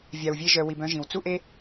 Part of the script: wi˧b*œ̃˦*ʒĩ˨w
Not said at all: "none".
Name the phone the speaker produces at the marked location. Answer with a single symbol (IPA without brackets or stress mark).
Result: œ̃˦